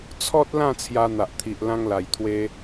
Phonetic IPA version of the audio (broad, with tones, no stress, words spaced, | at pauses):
t͡sʰɔ˦t̚lã˥˧ t͡sʰja˧n̪a˨ʔt̪ʰi˨ʔ lã˧ŋla˨˩jt̪ʰwe˧